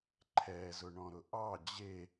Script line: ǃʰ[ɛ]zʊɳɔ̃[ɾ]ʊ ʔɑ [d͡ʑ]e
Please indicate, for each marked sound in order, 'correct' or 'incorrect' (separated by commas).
correct, correct, correct